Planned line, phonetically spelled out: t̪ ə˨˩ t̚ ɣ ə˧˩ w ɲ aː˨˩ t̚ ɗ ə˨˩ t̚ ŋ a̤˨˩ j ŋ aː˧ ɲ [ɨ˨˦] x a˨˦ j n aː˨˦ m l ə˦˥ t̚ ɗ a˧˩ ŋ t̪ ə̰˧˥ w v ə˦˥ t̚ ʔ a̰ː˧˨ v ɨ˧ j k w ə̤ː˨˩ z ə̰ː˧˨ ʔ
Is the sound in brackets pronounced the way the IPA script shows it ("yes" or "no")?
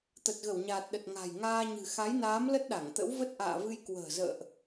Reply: no